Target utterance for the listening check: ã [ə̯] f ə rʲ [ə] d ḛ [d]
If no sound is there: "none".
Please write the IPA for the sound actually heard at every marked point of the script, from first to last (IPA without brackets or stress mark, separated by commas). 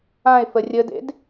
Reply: ɪ̯, ə, d